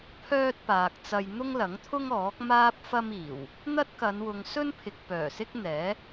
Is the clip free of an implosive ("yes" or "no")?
yes